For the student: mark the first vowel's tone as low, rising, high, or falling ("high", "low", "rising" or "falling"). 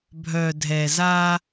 low